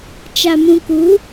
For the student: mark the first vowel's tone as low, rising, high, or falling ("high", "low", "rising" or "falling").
low